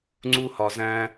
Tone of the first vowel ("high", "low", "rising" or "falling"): high